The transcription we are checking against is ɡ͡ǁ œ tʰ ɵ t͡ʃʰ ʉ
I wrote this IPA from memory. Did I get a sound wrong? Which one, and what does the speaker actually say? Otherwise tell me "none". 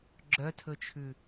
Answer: none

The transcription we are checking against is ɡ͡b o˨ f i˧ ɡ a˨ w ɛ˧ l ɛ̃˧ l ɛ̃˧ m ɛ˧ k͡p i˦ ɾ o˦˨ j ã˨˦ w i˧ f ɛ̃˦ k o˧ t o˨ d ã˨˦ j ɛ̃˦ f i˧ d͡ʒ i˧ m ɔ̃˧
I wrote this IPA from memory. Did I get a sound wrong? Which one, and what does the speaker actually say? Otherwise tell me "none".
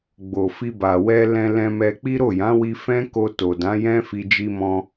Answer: ɡ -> b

